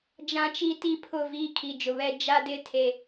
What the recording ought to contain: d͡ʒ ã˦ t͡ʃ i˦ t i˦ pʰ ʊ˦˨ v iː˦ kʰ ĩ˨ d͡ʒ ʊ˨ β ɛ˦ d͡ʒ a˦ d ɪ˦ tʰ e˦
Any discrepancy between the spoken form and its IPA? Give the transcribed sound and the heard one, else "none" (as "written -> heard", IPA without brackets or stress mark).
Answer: ĩ˨ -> i˨